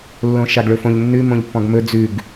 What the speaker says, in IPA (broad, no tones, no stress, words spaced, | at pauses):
lːõʃaɡɭɵfõʎ nːʉ mõʎpːɔ̃ɡmɵ d͡zʉɡ